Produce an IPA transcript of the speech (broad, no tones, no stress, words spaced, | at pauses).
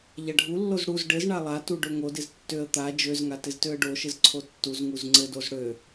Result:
ʎaɖʱulːoz ɽuz ɖɘzɳa lˠatu ɖøŋodɪz tːøə̯ t̪a d͡ʒøzŋa tɪztøə̯ɖoʃɘz ǀʰotːuzŋuz ŋ͡ǀɘdoz ɽø